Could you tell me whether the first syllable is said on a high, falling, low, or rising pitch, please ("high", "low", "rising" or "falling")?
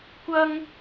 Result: high